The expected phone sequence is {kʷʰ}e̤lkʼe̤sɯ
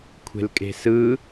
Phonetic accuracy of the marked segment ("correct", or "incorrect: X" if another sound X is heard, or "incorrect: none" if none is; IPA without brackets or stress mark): correct